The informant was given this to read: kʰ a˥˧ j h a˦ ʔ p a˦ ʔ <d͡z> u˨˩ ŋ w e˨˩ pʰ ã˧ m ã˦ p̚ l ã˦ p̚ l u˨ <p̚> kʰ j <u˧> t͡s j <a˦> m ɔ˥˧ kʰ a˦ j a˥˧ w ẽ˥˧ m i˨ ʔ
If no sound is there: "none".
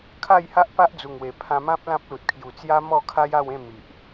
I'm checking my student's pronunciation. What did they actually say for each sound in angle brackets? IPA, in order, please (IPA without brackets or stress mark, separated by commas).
d͡z, t̚, u˨˩, a˦